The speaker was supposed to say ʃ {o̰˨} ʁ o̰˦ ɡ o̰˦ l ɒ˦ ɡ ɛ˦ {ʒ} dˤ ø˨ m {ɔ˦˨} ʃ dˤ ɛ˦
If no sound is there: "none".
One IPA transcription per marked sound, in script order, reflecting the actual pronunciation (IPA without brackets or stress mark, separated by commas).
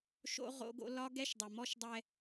o̰˦, ʃ, ɔ˦